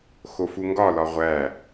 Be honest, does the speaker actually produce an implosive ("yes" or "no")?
no